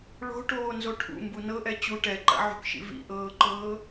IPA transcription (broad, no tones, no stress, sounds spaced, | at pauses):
ɭ o̤ ʈ oː n z o ʈʰ ṵ m b u n ɤ ʔ ɛ t͡ɕ u ʈ ɛ ǃ a̰ ʕ o̤ k ʃ ḭ v ḭ ʔ ɤː ǃ ɤː